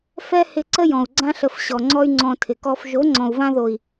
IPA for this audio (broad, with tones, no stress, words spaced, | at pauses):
fɛ˦hɪ˧ ǀə˦jɔ̃˨u̯ ɡ͡ǀã˧ɬə˨f ɕɔ˨ŋ͡ǀɔ˦y̯ŋ͡ǀɔ̃˧ tʰɪ˨kɔ˦f ʒo˨˦ŋ͡ǀɔ̃˨u̯vã˧ðo˨i̯